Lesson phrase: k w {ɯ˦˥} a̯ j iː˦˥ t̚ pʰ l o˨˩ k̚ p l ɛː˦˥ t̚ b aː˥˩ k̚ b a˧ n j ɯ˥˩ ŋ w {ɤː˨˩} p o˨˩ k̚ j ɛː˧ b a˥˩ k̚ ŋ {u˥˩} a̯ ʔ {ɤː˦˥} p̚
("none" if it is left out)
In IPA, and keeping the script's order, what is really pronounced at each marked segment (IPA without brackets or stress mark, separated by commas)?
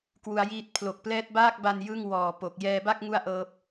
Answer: u˦˥, ɔː˨˩, u˥˩, ɤː˦˥